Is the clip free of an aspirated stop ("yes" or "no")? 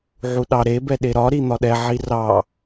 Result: yes